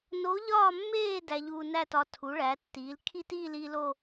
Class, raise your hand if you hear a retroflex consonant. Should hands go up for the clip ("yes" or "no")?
yes